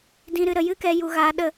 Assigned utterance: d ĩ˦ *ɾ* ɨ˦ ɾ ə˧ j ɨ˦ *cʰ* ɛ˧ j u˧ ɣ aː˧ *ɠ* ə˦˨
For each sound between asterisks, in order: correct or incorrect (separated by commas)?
correct, incorrect, incorrect